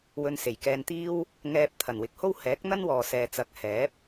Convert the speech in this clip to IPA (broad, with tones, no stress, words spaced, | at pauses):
wɵ˧nse˨˩j kɛː˧nt̪iː˥w | ŋɛː˧p̚ t̪ʰɐ˨˩nwɪ˨˥k̚ho˥w hɛː˨˥k̚n̪ɐ˥n wɔː˨sɛː˨ t͡sɐ˨˥k̚ hɛː˨˥p̚